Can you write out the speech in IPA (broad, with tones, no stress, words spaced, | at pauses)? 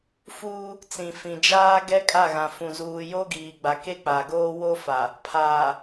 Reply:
fuː˦ | t͡sĩ˨fĩ˨d͡ʒaː˦ ɡɛ˦kʼa˦˨ɣã˨ fũ˨ zuː˨jo˦ɡiː˨ɡ͡ba˨ ke˦k͡pa˨ɡoː˦ wo˦fa˨ | pʰaː˨